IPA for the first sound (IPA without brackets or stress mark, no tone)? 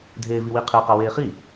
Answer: dʱ